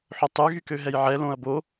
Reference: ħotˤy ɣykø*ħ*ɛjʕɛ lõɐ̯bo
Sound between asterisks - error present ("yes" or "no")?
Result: yes